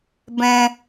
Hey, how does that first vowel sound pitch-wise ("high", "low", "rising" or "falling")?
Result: high